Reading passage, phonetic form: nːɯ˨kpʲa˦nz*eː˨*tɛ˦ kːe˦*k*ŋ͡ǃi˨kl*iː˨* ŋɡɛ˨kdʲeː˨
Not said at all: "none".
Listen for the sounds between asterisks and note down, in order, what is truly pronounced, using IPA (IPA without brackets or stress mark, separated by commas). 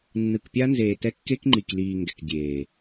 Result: eː˨, k, iː˨